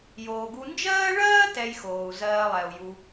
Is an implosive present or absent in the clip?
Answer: absent